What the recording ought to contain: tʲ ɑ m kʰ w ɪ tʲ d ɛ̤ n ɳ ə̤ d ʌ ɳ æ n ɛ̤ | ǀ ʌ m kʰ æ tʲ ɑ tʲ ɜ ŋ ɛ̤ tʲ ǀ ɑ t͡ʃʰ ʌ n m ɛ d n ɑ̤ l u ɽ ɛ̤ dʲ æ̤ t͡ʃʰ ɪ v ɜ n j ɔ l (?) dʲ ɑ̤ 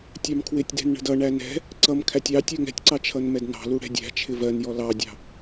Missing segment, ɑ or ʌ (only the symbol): ɑ